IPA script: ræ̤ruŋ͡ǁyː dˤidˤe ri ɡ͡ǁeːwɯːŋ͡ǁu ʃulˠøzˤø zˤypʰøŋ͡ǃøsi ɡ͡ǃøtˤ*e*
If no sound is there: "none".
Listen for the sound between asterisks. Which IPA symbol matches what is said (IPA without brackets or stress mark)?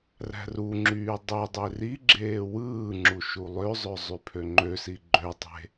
e̤